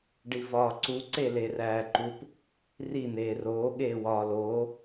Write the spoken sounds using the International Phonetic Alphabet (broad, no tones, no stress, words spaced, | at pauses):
ɖivɒːǀu ǀeleræːǃup | ri n̪eːroː ɠeːwɒːloː